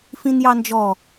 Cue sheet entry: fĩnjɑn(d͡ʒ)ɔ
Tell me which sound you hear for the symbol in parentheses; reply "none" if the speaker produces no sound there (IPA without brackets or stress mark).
d͡ʒ